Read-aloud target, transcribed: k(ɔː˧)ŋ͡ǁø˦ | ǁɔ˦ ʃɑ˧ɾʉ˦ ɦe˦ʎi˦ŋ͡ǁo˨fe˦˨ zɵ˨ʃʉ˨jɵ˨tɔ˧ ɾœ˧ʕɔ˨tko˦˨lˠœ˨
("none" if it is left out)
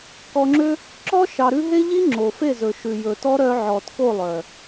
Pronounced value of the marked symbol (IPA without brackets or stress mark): ɔ˧